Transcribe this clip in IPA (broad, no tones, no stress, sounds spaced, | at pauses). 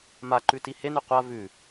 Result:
m a ǃ ʉ t i h e n ʉ qʷ a v ʉ